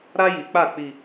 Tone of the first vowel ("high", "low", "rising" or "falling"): high